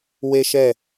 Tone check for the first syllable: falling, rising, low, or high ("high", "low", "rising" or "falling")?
high